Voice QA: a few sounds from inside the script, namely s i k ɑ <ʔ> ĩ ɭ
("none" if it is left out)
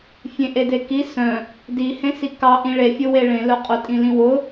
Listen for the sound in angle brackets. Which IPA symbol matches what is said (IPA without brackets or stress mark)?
ʔ